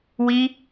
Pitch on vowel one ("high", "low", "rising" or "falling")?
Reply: high